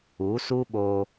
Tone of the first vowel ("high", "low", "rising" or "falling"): rising